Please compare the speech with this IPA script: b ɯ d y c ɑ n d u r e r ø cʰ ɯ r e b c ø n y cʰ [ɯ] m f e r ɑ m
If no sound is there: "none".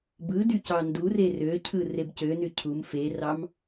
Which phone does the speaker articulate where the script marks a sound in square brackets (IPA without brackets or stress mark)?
u